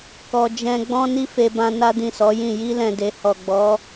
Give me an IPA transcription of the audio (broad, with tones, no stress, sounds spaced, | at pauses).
k ɔ˧ d͡ʒ ɛ̃˦ ɡ͡b ɔ̃˦ n i˦ f e˧ b ã˧ n a˦ d ĩ˦˨ s ɔ˨˦ j ĩ˦˨ j i˧ l ɛ̃˨ d e˨ h ɔ˨ ɡ͡b ɔ˨˦